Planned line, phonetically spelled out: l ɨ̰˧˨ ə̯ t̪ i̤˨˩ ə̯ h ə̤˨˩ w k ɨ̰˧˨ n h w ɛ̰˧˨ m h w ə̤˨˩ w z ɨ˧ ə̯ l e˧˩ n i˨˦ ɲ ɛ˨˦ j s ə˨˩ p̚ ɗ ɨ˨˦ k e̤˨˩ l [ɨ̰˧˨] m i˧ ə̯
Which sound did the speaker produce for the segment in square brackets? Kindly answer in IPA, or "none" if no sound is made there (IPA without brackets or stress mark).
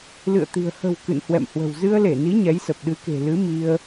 ɨ˨˦